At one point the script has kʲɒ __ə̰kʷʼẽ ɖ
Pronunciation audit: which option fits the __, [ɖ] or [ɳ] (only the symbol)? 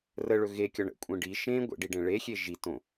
ɳ